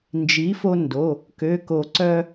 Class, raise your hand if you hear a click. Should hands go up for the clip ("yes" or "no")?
yes